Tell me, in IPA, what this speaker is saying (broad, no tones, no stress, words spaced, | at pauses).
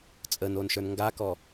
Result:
t͡sʼənonʃə˞n ŋɡakɔ